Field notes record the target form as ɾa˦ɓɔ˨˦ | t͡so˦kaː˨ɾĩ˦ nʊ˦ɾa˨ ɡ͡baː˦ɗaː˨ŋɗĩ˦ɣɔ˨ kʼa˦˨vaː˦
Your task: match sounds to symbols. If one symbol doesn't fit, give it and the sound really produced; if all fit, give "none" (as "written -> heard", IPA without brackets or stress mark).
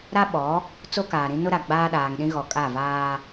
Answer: none